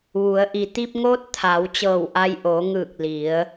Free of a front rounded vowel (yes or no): yes